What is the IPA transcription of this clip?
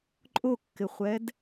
ǃʼʊkːɪχʷɛd

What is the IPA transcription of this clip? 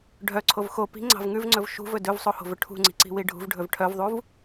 ɖʱœǀʰov xo pi̤ŋ͡ǀɑ̤v ŋʉvŋ͡ǀɵv ʃṳvɵ dɵvsˤoho̤vɵ ʈʰṳŋ͡ǀi̤ǀi̤wi ɖʱṳvɖʱɵv ʈʰœvðˤuv

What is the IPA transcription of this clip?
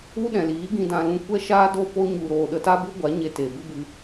u˦ɗɛ̃˨liː˨˦ ɡĩ˧dã˧lũ˧ kʷɛ˦ʃaː˦do˦˨ po˧ɲu˨ɾoː˨ ɗə˧ta˦bu˦ɡʷa˨˦ ɲe˧te˨ bɨ˦bɨ˧

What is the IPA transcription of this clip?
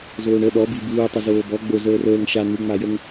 zoːɳə ɗɔbi buːtˤə zoːbɔ ɡ͡bo zəːrəːŋ ʃa n̪uŋ͡majəŋ

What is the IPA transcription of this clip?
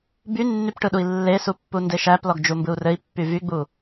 bynːypʈɯɗui̯ lːesupːunde ʃæplɔɡd͡ʒumbɯu̯ rɘi̯pːy vyɡ͡bu

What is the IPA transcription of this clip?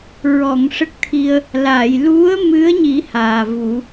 ɹɔ˨˩˨ŋ ʂə˦˥k̚t̪ʰi˧ə̯ | la˨˩˨j lu˧˥ə̯mɨ˧˥ə̯ɲi˨˩˦ haː˨˩vu˨˩˦

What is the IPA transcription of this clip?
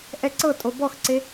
ʔɛǀɤtʼo bɔxǀe

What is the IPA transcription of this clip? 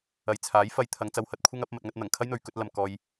ɐ˨jt͡sʰaː˨˥j fɐ˧jt̪ʰɐ˨˧ŋ t͡sɐ˧whɐ˧t̚kʷʰɐ˥ŋ ɐ˨˥p̚ mɐ˧t̚ŋɐ˥t̚ n̪ɐ˨˩ŋkʰɐ˥j n̪ɵ˨˧ɥkɵ˨˥t̚ lɐ˨mkɔː˧j

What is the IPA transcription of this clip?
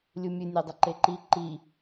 lʲumʲɨ nʲedˤəǃeǃi ǃi

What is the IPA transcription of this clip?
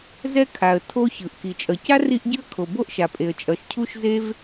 zɛ˥kʰa˩ə̯ tʰo˥çɯ˩ʔ ki˩t͡ʃʼʌ˩ca˥ ri˥ʔɟɯ˥ə̯ kʰo˩bo˥ʔʃa˩ pʼe˩ə̯t͡ʃʼʌ˩ʃ cʰu˥ʃ ze˥v

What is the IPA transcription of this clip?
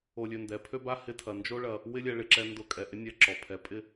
o˧lʲø˧ndɛ˨˦ pʰø˦ba˦hɪ˦tʰɐ˧ nd͡ʒo˦ɭɐ˧ | wɪ˦lʲɛ˧ ɭɪ˨ǁɛ˧ndʊ˧kʼɛ˨ ʔɪ˦nʲɛ˧ ǁɔ˨pʰɛ˨˦pʼɪ˦

